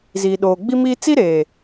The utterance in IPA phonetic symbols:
ziː˨ ɗoː˨ɡ͡bi˦miː˦ t͡si˦ ɾeː˨

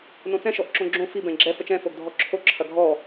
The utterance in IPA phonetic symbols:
nõt͡sɛ̃ ʃɔʔǁõɡ͡ǁõ fi bɛ̃ɡ͡ǁɛ fət͡ʃɛ̃ foɡdʱɔǁʰo ǁʰɐɡʱɔ

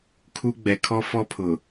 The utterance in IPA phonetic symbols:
kʰu˦ɡ͡bɛ˨ kʰɔ˦fɔ˦pʰʊ˨

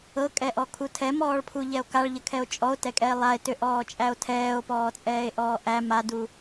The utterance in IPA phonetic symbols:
ɤkʼɛʔɔkʰu tʰɛmɔːɭpʰuʎɛo̯ kaɭʎəkʰɛo̯ t͡ʃʼɔo̯tɛkʼɛe̯ lˠae̯tʏʔɔːt͡ʃʼæo̯ tʰɛːo̯pɔːt͡sʼɛːe̯ʔɔː ʔæ madu

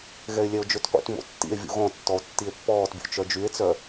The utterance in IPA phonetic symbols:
ɣɛe̯lʲɛo̯d͡ʒøtqʷḭt mo̰tːḭe̯ vʲṵɣɔ̃ tːɔo̯tːie̯pːɔːtbʲo̰ t͡ʃœd͡ʒye̯t͡sœ

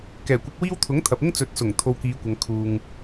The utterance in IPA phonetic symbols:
kɛː˨˩kʷɪ˧k̚wiː˥w t̪ʰʊ˨˥ŋt̪ʰɐ˨p̚ɪ˥ŋ t͡sɵ˨˥t̚sʊ˨˩ŋ t̪ʰo˧wkiː˨˧kʷɐ˨˧ŋ kʰuː˧ŋ

